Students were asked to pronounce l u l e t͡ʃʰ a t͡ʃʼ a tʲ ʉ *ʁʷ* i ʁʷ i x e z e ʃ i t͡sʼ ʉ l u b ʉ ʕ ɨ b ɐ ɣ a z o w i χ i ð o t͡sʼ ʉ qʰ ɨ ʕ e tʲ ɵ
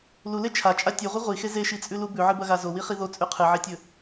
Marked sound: correct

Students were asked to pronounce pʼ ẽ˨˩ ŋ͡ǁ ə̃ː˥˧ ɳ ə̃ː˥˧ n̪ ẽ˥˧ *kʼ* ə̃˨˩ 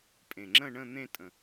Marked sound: incorrect: tʼ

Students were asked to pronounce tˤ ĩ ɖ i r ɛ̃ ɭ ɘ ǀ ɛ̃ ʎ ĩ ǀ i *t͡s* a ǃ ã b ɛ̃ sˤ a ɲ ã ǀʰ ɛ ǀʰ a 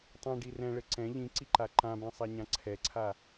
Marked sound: incorrect: ǃ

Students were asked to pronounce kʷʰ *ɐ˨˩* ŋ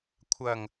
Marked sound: correct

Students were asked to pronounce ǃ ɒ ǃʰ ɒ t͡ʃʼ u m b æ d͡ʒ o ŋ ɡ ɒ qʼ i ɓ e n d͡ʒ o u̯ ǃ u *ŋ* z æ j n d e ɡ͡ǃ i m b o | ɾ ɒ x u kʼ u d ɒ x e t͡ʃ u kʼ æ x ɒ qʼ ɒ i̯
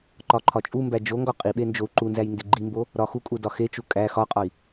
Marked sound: incorrect: n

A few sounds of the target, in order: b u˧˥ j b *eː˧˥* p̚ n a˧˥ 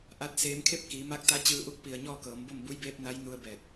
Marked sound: correct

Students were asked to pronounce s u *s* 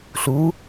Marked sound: incorrect: none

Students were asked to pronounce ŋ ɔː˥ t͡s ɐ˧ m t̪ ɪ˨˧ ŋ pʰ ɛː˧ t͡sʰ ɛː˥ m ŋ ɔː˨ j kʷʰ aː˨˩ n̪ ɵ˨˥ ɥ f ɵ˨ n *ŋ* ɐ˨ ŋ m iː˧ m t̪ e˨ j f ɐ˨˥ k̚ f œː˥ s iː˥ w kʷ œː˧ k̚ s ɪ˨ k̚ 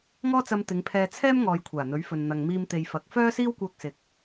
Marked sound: incorrect: n̪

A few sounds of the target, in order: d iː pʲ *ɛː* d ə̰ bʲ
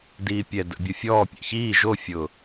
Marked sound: incorrect: ɛ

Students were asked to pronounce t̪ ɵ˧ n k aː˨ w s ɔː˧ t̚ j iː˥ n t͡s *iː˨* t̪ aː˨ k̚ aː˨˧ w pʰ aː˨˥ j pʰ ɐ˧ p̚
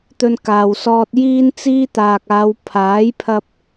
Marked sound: incorrect: iː˥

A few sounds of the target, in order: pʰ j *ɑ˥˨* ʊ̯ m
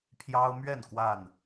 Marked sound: incorrect: ɑ˦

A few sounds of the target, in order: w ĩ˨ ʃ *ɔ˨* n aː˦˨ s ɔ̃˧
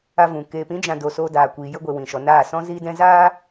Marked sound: correct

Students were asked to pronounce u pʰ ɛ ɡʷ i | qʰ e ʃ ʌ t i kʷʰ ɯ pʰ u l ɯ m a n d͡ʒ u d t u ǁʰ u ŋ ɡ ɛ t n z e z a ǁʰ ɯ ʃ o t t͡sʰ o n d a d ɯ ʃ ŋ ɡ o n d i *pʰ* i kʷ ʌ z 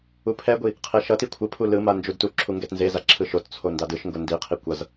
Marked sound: incorrect: qʰ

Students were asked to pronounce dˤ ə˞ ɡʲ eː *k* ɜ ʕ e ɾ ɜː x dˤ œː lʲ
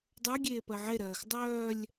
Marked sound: incorrect: p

